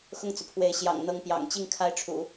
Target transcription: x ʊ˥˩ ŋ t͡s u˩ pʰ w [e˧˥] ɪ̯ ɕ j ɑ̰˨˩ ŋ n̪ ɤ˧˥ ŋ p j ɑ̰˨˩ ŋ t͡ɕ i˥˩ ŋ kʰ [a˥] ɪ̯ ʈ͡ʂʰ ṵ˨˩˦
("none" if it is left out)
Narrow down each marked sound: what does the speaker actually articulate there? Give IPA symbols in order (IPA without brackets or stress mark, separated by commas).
e˧˥, a˧˥